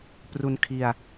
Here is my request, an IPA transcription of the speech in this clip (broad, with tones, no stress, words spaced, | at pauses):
pru˧nkʰi˧a̯